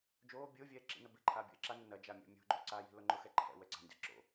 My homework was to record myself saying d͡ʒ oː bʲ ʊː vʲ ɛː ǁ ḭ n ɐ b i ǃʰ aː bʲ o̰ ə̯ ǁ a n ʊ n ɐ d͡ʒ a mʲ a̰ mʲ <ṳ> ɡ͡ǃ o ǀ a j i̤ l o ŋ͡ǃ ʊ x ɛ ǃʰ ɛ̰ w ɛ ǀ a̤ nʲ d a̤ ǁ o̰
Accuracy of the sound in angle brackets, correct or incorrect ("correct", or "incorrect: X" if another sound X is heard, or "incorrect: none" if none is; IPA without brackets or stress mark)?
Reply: incorrect: o̤